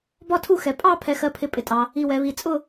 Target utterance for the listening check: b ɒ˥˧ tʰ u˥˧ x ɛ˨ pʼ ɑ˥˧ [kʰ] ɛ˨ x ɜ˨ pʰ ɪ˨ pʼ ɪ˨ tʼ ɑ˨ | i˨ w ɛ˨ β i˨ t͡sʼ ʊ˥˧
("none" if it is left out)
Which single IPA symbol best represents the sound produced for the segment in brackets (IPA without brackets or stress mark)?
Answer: pʰ